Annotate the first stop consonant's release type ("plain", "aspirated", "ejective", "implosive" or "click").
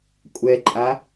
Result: ejective